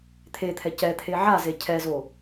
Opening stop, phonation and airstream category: aspirated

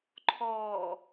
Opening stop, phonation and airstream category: click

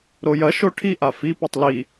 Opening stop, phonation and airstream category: aspirated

